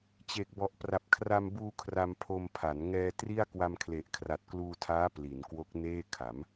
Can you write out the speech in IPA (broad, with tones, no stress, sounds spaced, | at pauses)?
t͡ɕ e˨˩ k̚ b ɔ˨˩ ʔ p r a˨˩ p̚ kʰ r a˧ m b uː˧ kʰ r a˧ m pʰ o˧ m pʰ a˩˦ n ŋ ɛː˧ t r i˥˩ a̯ k w a˧ m kʰ l e˨˩ ʔ kʰ r a˨˩ t̚ k l uː˧ tʰ aː˦˥ p l i˩˦ n k w o˦˥ k̚ n eː˥˩ kʰ a˩˦ m